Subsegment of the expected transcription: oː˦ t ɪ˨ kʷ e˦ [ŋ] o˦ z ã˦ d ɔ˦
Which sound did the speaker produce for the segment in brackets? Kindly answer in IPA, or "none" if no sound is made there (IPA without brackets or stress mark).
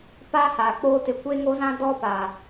ŋ